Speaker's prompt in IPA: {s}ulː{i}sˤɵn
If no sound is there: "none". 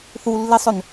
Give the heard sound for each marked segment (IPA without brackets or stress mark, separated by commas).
θ, i